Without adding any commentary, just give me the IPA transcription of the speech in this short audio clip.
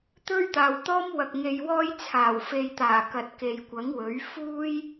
t̪ ɵ˥ ɥ t̪ aː˨ w t̪ ɔː˥ m w ɐ˨ k̚ ŋ e˨ j w ɔː˧ j t͡sʰ aː˨˩ w f e˨ j t̪ aː˨˩ k ɐ˨ t̚ k e˨ j kʷ ɐ˨˥ ŋ w ɵ˨˥ ɥ f uː˥ j

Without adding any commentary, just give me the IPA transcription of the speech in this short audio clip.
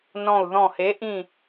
n ɔ̃˧˩ u̯ ð ɔ̃˧˩ h e˨˥ ʔ ĩ˥˨

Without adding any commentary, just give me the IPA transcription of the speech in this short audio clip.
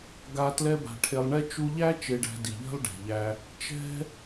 ɡ a˧ t l ɛ˦ b a̤˧ ʈʰ e˧ lˠ ɳ ɛ˦ t͡ʃ u˧ ʎ æ˦ t͡ʃ e˧ ɖ æ̤˧ d i˨ ʎ ɛ̤˦ lˠ ɖ ɛ̤˨ ʎ æ˧ | t͡ʃ ɛ̤˦

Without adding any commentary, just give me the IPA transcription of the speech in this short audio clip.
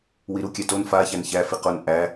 w i ɾ u kʲ æ t o n f a ç æ n ç æ f i q o n ʔ æ

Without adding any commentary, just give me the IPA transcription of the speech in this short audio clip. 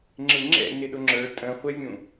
ŋ͡ǁ ɪ ŋ͡ǁ ɛ̰ n ɪ ɗ ʊ ŋ͡ǁ ə˞ tʼ ə̃ χʷ ɛ vʲ ũ

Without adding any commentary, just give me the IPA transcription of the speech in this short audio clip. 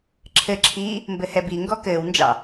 ǁʰ ɘ ǁʰ iː | m b ɘ h ɛ b i ŋ ɡ ɔ k ɘː w n d͡ʒ ɑ̰

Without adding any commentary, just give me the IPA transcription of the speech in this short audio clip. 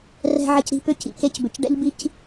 r ɛ̤˧ ʕ ɘ˧ c ɾ i̤˧ p ʏ˦ c ḭ˨ k e˧ c b ʏ˨ c ɖ ɛ̰˦ ʎ b i˦ c

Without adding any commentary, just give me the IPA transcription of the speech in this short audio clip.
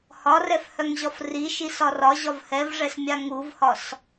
h ɒ r ɛ f h œ ŋ ʑ ɒ f r i ʃ i s ɒ r ɒ ʑ ɒ v h ɛ v ʐ ɛ s mʲ a ŋ u v h ɒ s

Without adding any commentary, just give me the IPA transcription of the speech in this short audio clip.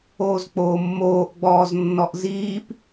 oː z k͡p oː mː oː ʔ ɡ͡b ɔː z nː ɔ ʔ z iː p

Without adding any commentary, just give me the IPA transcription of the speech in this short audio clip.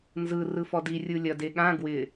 n z ɯ r ɯ f ɔ d i rʲ ɯ lʲ ɐ d e ɠ ã ɡ w ɪ

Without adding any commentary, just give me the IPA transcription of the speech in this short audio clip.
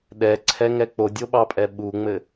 ɗ ɛ ǀʰ ɛ ŋ ɛ k͡p o dʲ o ɓ ɑ pʼ ɛ ɓ u ŋ͡m ɘ

